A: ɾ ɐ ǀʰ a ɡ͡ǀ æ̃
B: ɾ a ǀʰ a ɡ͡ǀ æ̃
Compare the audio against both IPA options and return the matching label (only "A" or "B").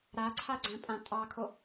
B